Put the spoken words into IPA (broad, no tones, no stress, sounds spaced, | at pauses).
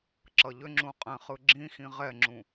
ǁ ʌ ʎ ʏ ŋ͡ǁ ũ qʼ ɛ̃ χ ɯ ɡ͡ǁ ĩ x ĩ ʁ ɛ ŋ͡ǁ ũ